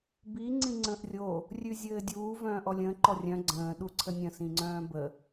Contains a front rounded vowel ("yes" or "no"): yes